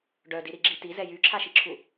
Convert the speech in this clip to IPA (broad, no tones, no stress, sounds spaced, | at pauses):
ɖ œ d i ɾ i ɡ͡ǁ i t i z ɛ j y ǁʰ a ʃ i ǁʰ u